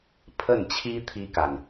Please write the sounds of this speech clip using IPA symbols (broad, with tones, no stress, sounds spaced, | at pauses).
pʰ ə˥˩ n t͡ɕʰ i˥ t̪ʰ i˥ k a˨ n